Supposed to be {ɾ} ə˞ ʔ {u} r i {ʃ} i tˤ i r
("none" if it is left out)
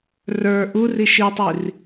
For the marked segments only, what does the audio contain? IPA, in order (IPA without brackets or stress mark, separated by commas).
r, u, ʃ